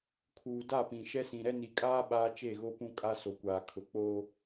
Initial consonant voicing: voiceless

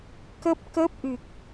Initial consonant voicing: voiceless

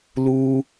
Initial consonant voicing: voiced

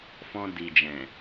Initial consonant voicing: voiceless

